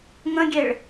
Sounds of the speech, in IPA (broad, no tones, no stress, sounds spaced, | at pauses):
ŋ ə̃ ɡʲ e ɭ